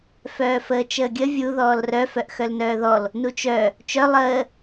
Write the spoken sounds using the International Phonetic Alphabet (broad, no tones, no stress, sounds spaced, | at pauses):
f œː f əː t͡ʃ əː ɡʲ ə vʲ u ð ɔː l r œ f œ ʔ x œ l n œː ð ɔ l | n u t͡ʃ œ | t͡ʃ œ lˠ əː